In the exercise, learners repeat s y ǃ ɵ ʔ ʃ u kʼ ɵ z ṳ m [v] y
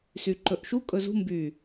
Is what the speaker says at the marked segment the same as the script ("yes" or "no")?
no